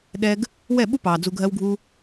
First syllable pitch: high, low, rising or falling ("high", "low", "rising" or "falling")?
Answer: high